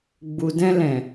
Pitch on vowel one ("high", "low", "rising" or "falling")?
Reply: low